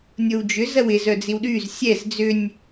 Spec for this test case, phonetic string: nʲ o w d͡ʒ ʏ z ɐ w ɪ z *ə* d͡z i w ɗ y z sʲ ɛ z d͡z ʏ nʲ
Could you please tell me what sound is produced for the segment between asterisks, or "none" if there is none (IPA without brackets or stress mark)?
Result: œ